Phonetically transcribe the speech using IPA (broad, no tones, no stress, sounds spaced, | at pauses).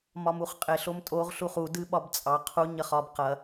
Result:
m ɒ m u χ qʼ e ɬ o m tʼ o ʁ ɬ u χ u d ɨ ɓ ɒ b t͡sʼ ɑ qʰ u ɲ ɐ χ ɒ b q ɐ